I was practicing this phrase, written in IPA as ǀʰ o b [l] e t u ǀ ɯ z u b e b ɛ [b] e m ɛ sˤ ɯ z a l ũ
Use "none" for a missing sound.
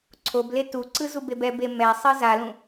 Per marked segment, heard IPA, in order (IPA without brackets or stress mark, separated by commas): l, b